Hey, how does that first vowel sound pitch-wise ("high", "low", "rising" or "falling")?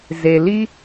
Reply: low